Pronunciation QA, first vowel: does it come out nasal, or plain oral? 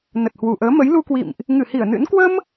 oral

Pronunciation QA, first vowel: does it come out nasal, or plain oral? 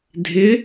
oral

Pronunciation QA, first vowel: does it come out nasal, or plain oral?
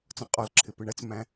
nasal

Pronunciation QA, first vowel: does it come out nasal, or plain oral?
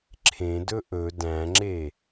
nasal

